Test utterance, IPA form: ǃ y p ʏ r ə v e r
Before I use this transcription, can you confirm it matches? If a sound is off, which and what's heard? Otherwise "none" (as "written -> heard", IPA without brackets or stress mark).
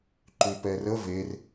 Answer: ʏ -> ɛ